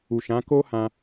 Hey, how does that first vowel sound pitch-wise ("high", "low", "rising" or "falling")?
low